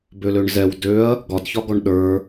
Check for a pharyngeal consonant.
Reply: absent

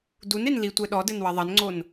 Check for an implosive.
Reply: present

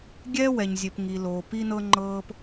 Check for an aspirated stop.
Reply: absent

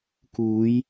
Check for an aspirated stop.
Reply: absent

